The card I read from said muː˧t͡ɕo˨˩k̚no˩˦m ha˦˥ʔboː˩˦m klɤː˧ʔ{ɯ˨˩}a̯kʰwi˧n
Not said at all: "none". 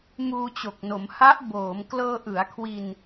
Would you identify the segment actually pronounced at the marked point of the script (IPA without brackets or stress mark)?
ɯ˩˦